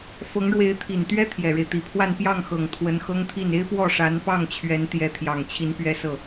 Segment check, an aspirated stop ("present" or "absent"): present